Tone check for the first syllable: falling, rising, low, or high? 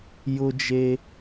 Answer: high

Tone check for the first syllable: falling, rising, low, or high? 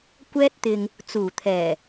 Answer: high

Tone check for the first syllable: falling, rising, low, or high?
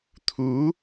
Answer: rising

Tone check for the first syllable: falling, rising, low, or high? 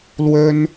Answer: high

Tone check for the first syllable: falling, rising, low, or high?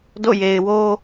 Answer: falling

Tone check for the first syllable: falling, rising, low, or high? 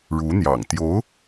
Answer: rising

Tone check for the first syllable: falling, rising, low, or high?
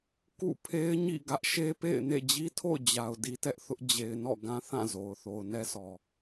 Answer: falling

